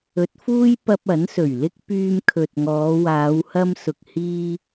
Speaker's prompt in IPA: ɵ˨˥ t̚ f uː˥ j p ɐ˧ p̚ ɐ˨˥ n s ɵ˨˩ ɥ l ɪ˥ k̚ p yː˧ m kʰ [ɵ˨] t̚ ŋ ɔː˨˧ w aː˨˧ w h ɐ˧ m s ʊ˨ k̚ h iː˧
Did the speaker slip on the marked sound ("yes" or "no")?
no